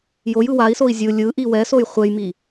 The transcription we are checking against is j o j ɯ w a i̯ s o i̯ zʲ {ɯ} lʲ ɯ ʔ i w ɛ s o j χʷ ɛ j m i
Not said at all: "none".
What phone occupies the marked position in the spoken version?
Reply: ɯ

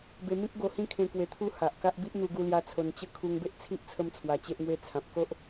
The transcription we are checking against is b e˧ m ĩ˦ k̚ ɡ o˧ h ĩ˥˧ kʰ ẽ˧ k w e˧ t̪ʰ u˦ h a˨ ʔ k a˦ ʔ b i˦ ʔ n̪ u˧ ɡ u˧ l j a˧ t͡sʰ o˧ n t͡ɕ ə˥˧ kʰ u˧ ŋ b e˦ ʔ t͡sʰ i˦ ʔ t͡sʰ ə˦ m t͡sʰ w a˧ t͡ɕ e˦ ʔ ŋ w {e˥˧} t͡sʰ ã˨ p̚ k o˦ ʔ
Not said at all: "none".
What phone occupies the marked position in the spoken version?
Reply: e˦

